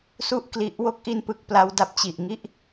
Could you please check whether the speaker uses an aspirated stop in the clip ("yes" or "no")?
no